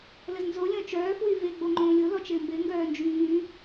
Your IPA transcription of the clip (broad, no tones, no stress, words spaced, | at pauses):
ləznzo lʲɔ̃t͡ʃœː fwyvɪ ɡ͡boŋ͡ǃõːlʲo lɔt͡ʃɪːmbɪ ŋɡœːnd͡ʒyː